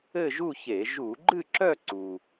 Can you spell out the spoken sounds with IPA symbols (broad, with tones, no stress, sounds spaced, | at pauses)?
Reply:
ɘ˥˧ ʒ u˥˧ ç e˧˩˧ ʒ u˧˩˧ ɡ͡ǃ ɨ˥˧ ǁ œ˥˧ ǀ u˩